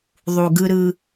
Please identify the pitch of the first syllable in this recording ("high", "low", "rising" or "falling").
low